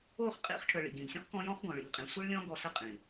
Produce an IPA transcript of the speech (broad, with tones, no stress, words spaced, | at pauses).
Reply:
o˦˨χqʼḭ˧χʈʰə˨ ɭḭ˨ɡĩ˨ʎsʲɔ̃˦χ kɔ̃˦jɔ̃˦χ ɡɔ̃˨ɭḭ˨ʎqʼĩ˨ sʷi˦ɭlʲɔ̃˦ ɡɔ˧sə˦˨ qʼĩ˨